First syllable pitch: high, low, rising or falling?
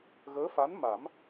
rising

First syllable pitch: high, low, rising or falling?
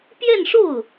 falling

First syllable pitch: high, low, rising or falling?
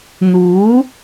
rising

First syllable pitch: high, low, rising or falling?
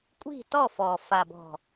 falling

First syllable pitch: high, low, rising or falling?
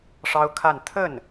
high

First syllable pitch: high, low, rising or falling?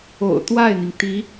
low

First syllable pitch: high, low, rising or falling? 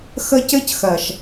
high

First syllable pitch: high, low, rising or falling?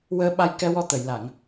rising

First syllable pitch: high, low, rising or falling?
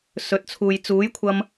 rising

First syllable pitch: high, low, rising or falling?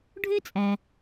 high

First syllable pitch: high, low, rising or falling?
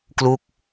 falling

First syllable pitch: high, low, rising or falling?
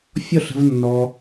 falling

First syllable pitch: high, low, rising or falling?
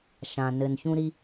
low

